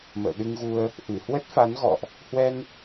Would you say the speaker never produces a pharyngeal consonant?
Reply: yes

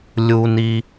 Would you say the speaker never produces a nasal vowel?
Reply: yes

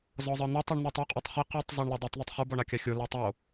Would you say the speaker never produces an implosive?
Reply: yes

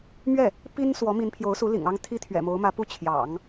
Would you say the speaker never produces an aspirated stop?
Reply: no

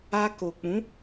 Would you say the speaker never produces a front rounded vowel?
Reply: yes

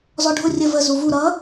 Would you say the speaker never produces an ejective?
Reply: yes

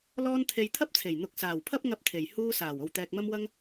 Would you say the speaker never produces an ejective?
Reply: yes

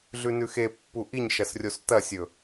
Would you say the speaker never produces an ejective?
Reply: yes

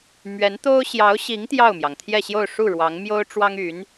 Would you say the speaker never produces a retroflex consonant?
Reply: no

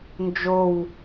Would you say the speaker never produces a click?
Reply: yes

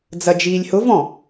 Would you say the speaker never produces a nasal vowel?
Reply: no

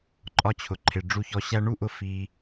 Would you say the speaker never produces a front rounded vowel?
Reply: yes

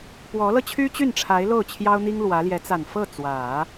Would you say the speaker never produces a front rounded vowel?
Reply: no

